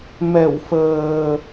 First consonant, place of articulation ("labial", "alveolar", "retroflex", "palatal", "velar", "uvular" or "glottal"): labial